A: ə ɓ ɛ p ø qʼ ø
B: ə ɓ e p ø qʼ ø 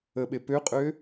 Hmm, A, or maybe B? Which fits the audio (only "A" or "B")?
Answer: B